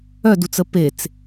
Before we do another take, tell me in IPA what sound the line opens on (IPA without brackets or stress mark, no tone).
œ